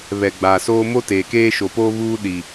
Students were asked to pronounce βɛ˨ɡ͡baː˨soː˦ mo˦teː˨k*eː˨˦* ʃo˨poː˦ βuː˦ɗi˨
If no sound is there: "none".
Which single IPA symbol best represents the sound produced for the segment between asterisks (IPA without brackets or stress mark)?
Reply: eː˦